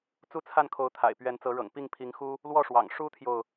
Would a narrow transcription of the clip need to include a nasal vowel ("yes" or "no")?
no